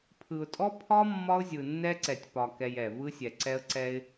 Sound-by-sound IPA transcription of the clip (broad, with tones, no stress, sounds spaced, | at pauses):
pʰ ɯ˨ ʊ̯ tʼ ɔ˦ pʰ ɒ˦ mː ɒ˦ ʊ̯ zʲ ɯ˨ nː ɛ˦ ǀ ɛ˨ tʲ p ɒ˨ k ɛ˨ j ɛ˨ v ɯ˦ sʲ ɛ˨ ǀ ɛ˦ ə̯ ǀ ɛ˦ ɪ̯